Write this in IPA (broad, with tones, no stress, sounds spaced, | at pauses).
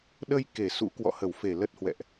ɗ ə˧ j k e˧˩ s ṵ˧˥ k w ɔ̰˧˨ h ə˧˩ w f e˧˩ l ə˦˥ t̚ h w ɛ̰˧˨ ʔ